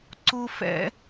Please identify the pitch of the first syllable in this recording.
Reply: high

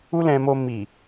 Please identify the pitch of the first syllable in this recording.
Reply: high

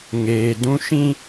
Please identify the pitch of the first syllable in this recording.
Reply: low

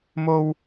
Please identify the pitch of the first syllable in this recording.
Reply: high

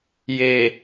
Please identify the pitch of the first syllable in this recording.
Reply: low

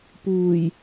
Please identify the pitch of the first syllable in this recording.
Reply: low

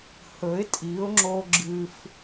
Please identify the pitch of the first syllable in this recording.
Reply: rising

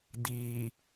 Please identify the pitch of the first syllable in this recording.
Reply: low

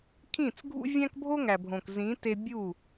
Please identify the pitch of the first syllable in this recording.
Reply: falling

